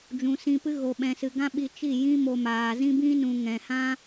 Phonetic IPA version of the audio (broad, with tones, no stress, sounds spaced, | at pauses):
d͡ʒ ũ˨ s ĩ˧ p ɨ˦ ɣ o˨ ɓ ɛ̃˨ s ɨ˨ ɡ ã˦ ɓ i˧ t͡ʃ i˦˨ j ĩ˦ m o˧ m aː˨ z ĩ˦ b ĩ˦ n ũ˨ ŋ ɛ̃˨ h ã˦